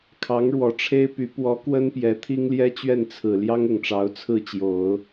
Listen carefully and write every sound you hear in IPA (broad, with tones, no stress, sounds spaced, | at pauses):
kʰ ɑ˧˥ ŋ ɻ w ɔ˨˩ ʈ͡ʂʰ e˥ ɪ̯ p y˧˥ p w ɔ˧˥ k w ə˥ n p j ɛ˧˥ t̪ʰ i˥ ŋ l j ɛ˥ t͡ɕ ɥ ɛ˥˩ n t͡sʰ ɹ̩˨˩ l j ɑ˥ ŋ ʊ˨˩ ŋ ʈ͡ʂ ɑ˧˥ ʊ̯ t͡sʰ ɹ̩˥˩ t͡ɕ j o˨˩˦ ʊ̯